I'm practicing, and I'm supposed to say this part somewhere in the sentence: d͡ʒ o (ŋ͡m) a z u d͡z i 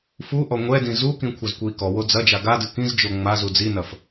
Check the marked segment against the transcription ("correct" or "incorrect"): correct